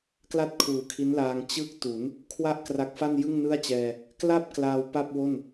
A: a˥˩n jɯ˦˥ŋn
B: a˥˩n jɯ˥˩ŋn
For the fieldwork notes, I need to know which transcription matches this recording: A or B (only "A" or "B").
B